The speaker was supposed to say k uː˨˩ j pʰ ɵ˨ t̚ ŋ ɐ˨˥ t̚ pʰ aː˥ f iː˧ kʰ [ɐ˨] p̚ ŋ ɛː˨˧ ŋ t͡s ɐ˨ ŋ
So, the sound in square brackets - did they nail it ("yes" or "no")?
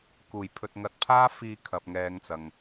yes